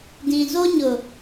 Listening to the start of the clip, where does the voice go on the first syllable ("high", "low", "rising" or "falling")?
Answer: low